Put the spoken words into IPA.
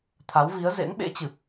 t̪ʰa˨˦wvi˨˦ə̯ zḛ˧˥nɓḛ˧˥t͡ɕɨ˨˩p̚

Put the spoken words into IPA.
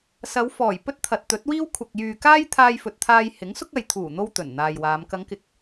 sɐ˨˧wfɔː˨˩j pɵ˥t̚t̪ʰɐ˨t̚t̪ɵ˨˥t̚wiː˥w kʷʰɐ˨k̚jyː˨ kaː˥jt̪ʰaː˧jfɵ˨t̚t̪ʰaː˧j hɪ˨˥ŋsʊ˥k̚ɐ˨j t̪ʰuː˨˩n̪o˧w t̪ɵ˨˩nn̪aː˨jwaː˨˧m kɐ˨˧ŋkɪ˨˥k̚

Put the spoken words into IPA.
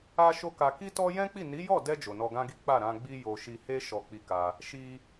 a˦ʃo˦ka˧ ki˦tɔ˦ jɛ̃˦k͡pi˦˨ ni˨˦jɔ˦˨dɛ˧ d͡ʒo˨nɔ˧ɡã˦ɡi˦ k͡pa˦˨ɾã˧ ɡ͡bi˦jo˧ ʃi˧he˦ ʃɔ˧k͡pi˧ka˧ | ʃi˧

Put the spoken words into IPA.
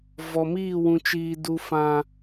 vɔ˨miː˦˨ wũ˨t͡ʃiː˨ du˨fã˨

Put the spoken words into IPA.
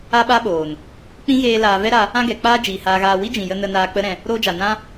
a˦ɓa˦ɓoː˨n | k͡pĩ˦ ɣeː˧ laː˧ vɛ˦ɾa˧ | ã˦ɡɛ˨k͡paː˦ d͡ʒiː˨haː˧ɣaː˧ wi˦d͡ʒĩ˨jə˧ nə˧naː˧ k͡pə˦ɾɛ̃˧ | ɾoː˧d͡ʒa˨ nã˦

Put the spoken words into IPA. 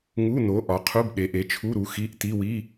ŋu˧˥˧no˨˥ ʔɒ˨˥qʰu˧˥˧b ɗe˨˥ʔe˨˥t͡ʃʰu˧˥˧ɾu˨˥ xi˧˥˧ʔti˧˥˧wi˧˥˧

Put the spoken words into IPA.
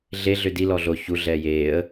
ɮeɮʏ di lɔɮo çu ɮɛːjeːə̯

